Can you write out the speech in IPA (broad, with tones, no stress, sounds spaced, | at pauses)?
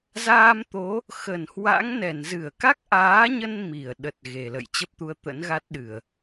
z aː˧ m t̪ o˨˦ | x ə˧˩ n h w a̰˧˥ ŋ n ɛ˧˩ n z ɨ˧˩ ə̯ k a˦˥ k̚ ʔ aː˨˦ ɲ ə˧ n m i˧˩ ə̯ ɗ ə˨˩ t̚ ɣ e˨˩ l ə̰˧˨ j t͡ɕ ə˦˥ p̚ t̪ u˧ ə̯ t̪ ə̰˧˥ n ɣ a˦˥ t̚ ɗ ɨ˧˩˨ ə̯